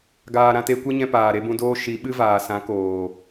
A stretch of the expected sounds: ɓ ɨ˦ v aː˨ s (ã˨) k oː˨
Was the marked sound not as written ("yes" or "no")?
yes